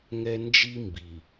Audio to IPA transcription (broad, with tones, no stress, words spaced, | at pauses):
ŋɛ˦ nd͡ʒi˦ mbi˨